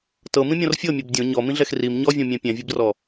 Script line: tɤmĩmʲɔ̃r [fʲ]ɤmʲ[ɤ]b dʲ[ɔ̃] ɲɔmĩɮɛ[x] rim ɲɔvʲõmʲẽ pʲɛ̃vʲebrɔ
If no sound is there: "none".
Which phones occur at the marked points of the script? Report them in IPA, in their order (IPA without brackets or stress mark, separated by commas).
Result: fʲ, ɤ, õ, x